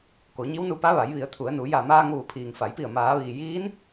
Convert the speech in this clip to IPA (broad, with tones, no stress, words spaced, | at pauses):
ko˩˧ɲi˧˥wnu˧pa˧˥ ʋa˩˧jʋi˩˧ə̯t̪ʰu˩˧ə̯nu˩˧ ja˧˩maː˧ŋ ʋu˩˧pʰiː˩ŋfa˩˧jpi˧˩ə̯ maː˩˧ʋiː˩ jiː˧˥n